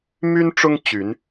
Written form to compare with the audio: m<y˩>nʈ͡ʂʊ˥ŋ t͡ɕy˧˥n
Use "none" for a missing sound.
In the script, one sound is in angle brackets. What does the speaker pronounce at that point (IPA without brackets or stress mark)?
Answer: y˥